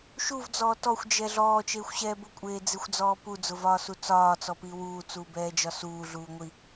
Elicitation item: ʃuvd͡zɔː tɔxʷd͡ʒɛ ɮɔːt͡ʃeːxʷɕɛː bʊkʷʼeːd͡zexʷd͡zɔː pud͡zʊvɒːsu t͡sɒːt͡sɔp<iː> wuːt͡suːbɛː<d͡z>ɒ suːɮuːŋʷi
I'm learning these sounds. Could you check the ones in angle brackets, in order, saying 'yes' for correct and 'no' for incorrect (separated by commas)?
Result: no, no